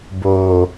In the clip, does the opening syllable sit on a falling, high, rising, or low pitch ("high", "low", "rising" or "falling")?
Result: low